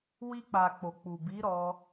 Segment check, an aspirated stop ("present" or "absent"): absent